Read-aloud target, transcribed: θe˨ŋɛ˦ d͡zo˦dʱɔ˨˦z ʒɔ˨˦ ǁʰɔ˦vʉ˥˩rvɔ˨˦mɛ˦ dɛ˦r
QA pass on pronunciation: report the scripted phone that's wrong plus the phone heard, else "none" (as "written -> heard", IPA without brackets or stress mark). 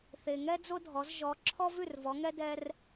m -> ŋ